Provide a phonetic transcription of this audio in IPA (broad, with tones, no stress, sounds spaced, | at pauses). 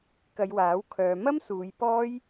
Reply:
k ɐ˨˧ j w aː˨˥ w kʰ œː˨˧ m ɐ˥ m s uː˨˧ j p ɔː˥ j